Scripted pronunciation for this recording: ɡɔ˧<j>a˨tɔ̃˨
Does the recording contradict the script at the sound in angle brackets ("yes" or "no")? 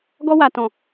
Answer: yes